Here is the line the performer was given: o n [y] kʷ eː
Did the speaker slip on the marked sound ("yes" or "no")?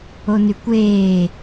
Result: no